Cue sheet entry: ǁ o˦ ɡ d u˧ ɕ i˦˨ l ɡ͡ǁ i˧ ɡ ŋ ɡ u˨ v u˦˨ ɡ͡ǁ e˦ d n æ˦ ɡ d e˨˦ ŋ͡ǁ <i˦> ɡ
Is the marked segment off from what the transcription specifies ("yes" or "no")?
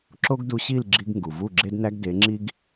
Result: no